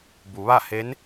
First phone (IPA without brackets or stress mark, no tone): b